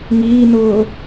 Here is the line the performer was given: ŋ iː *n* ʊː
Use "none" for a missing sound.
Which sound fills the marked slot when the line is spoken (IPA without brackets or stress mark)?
n